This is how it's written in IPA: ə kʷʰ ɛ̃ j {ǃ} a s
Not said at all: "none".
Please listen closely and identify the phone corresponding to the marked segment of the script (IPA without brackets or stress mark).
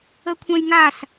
ŋ